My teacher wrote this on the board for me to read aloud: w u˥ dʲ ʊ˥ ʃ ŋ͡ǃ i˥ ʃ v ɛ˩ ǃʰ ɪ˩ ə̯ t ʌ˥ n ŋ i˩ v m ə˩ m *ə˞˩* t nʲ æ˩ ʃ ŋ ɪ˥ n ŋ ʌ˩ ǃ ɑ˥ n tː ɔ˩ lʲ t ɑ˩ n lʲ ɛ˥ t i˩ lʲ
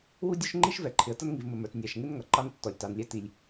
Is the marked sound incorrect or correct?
correct